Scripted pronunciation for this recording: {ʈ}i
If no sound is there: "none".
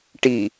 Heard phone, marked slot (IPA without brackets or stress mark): ʈ